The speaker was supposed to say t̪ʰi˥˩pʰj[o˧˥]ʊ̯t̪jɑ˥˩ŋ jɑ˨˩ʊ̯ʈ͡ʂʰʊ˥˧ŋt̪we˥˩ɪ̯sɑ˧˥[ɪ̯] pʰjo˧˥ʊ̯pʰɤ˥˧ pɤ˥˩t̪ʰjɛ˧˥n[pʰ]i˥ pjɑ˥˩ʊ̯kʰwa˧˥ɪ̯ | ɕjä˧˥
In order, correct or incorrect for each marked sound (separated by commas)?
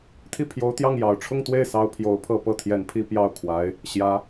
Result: correct, incorrect, correct